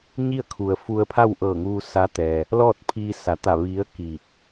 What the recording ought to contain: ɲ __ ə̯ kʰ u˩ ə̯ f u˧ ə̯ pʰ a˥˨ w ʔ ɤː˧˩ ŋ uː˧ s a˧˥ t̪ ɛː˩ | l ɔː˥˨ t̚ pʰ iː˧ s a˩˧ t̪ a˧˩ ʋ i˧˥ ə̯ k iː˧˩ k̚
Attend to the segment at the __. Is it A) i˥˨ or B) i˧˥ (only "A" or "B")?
A